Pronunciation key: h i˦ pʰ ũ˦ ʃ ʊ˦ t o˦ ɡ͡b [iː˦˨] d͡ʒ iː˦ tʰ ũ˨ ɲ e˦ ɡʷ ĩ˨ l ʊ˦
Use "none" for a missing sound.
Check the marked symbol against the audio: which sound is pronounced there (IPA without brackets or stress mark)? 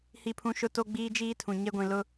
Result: iː˦